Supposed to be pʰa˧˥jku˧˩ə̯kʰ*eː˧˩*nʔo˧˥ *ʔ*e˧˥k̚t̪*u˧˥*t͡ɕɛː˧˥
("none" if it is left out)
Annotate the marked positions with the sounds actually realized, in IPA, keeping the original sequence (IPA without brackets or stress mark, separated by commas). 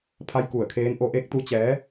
eː˧˥, ʔ, u˧˥